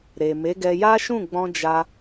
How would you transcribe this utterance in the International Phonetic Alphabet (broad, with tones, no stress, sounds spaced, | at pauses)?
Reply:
ɾ e˨ m e˨˦ ɡ ɛ˧ j a˦ ʃ ũ˦˨ ɡ͡b ɔ̃˧ d͡ʒ a˧